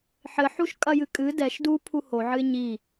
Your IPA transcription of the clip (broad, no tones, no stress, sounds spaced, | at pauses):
ħ ɘ ħ u ʃ kʼ ɐ j ɨ kʼ ɨ d ɛ ʃ d u pʰ u h o ʕ ɨ ɪ̯ ɲ i